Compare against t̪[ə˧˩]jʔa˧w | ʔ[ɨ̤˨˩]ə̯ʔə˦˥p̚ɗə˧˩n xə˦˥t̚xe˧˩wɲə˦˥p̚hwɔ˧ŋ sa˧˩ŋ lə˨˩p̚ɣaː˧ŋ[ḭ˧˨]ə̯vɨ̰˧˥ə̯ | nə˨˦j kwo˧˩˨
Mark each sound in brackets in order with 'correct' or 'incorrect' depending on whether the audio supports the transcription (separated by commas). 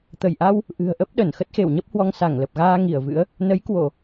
correct, correct, incorrect